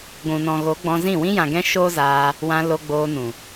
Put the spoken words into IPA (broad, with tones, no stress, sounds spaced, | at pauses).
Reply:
ɡʷ ũ˨ n ɔ̃˨ ɣ o˨˦ ɡ͡b ɔ̃˧ z ĩ˦˨ w ĩ˧ j ã˨ ɡ ɛ̃˧ ʃ o˦ z aː˧ | w ã˧ l o˧ ɡ͡b oː˧ n ũ˨